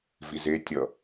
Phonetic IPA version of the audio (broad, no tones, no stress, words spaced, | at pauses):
vize tʲʌ